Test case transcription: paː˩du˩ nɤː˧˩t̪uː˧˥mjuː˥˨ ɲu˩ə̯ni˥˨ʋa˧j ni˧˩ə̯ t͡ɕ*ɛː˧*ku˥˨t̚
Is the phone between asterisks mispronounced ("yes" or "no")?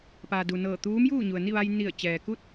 yes